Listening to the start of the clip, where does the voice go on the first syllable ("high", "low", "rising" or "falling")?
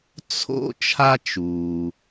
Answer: high